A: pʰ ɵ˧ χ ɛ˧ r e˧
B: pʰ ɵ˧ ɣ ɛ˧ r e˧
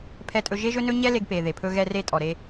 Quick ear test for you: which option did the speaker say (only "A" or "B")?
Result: B